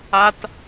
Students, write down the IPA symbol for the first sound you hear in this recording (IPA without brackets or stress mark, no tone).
a